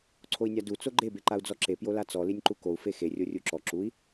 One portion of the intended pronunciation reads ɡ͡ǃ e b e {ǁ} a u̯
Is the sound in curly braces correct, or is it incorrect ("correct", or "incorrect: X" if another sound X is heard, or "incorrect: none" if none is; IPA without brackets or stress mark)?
incorrect: ǃ